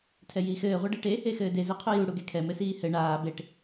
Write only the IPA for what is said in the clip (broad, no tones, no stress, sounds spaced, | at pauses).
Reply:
tʰ ɛ j iː x ɘː ʁʷ ɛ ɖ e ʈ e | e x ɘː d e z e qʰ u j u ɽ u ɡ e kʰ ɛ m ɘ s iː h ɘ ɳ aː b e ʈ